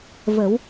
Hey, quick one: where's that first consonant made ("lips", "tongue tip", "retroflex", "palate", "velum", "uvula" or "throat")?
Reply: lips